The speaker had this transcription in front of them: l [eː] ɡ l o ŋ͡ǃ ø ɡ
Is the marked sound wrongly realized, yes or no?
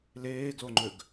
no